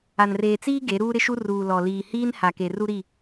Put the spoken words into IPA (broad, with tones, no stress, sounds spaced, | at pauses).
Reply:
a˨ n r eː˨ t͡s iː˦ ɡ e˨˦ ɾ uː˦ ɾ ɪ˦ ʃ u˦ r uː˨ l ɔ˨ l iː˨ h iː˦ n h a˨ k e˨ r u˦ ɾ i˦˨